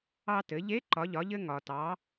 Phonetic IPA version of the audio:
ɑ˧ t ɘ˩˧ ʎ e˧˥ ǃ ɒ˩˧ ʎ ɒ˩˧ ʎ ɘ˧ ŋ ɒ˩ t ɑ˩˧

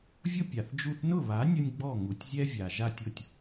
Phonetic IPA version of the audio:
vʲ ʊ˥ pʲ a˩ θ d͡ʒ u˥˩ θ n ʊ˥˩ β a˩˥ nʲ ʊ˧ nʲ ɡ͡b ɔ˥˩ ŋ u˩ tʲ zʲ ɛ˥ vʲ a˩ ʒ a˥˩ tʲ ʊ˥˩ tʲ

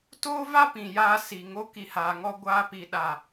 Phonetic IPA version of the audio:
t oː˦ v a˦ p ĩ˨ j a˧ s i˨ ŋ o˧ k i˨ h aː˨ ŋ ɔ˧ ɡʷ aː˧ p i˨ ɗ a˨

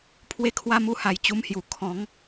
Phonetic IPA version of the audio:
pʰ w e˧ kʰ w a˧ m u˧ h a˨˩ j t͡ɕ u˧ m h j u˨˩ kʰ ɔ̃˨˦ ŋ

